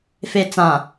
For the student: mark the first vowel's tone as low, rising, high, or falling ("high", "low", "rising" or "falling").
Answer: low